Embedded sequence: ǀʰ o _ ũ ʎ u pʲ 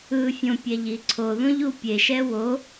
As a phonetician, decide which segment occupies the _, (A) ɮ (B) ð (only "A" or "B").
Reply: B